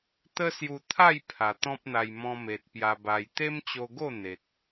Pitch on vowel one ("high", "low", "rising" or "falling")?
high